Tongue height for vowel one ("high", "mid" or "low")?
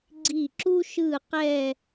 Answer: high